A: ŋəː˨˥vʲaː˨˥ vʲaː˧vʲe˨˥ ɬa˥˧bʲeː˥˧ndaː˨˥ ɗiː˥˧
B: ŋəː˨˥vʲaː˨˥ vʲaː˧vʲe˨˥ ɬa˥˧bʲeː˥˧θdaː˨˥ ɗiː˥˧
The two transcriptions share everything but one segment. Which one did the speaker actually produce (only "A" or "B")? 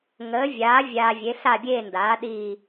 A